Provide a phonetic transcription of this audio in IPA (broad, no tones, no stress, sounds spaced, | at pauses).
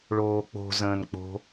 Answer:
ɭ oː k͡p o̤ z ə̃ː n k͡p o̤